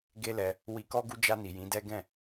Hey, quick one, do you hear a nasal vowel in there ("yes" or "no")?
yes